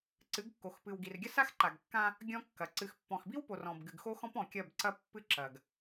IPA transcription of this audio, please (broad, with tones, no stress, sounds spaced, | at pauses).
ǀ ɨ˨˦ ɡ kː o˨ x p ɨ˨ w ɡ i˨ r ɡʲ ɐ˦ s a˦ x ǃ a˨ ɡ kː ã˦ | ɡʲ ɔ̃˦ kː ɐ˨ ǀ ɨ˨ x pː ɔ̃˨ x b i˦ w p o˨ r ɔ̃˨ b ɡ ɨ˨ ɡ x o˦ x ɔ̃˦ p ɔ̃˨ kʲ ɐ˦˨ b ǀ ɐ˦ pː ɨ˦ ǁ ɐ˨ ɡ